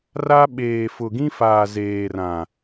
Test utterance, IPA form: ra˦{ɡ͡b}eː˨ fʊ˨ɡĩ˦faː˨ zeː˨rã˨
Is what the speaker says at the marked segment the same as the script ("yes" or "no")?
no